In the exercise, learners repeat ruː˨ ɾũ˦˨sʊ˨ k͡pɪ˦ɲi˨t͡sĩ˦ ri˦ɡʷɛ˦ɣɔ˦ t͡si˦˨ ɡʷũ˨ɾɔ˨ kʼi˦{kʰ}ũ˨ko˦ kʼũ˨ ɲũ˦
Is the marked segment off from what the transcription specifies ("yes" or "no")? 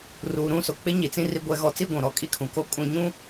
no